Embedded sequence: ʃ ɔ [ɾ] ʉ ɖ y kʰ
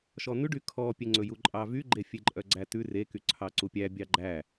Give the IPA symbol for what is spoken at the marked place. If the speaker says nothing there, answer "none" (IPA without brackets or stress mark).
n̪